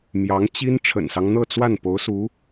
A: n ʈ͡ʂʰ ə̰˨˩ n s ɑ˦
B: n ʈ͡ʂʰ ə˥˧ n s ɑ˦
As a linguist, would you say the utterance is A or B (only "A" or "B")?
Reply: A